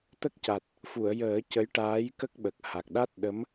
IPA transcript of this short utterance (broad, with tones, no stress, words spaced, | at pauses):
t̪ə˦˥k̚ca˨˩t̚ | fu˨˩˨ə̯jəː˨˩˦ cə˧˥jʈaː˧˥jkə˦˥k̚ɓə˨˩k̚ ha˨˩k̚ ɗa˦˥t̚ɗə˧˥m